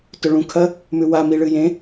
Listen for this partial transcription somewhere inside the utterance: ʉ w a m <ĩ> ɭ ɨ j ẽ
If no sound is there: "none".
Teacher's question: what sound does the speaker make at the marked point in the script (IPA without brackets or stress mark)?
i